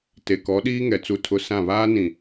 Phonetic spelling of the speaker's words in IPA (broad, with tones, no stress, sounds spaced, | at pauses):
t e˨ k ɔ˨˦ ɗ iː˦ ŋ ɛ˨ t͡s u˦ tʰ ʊ˦ s ã˦˨ β aː˦ n ĩ˨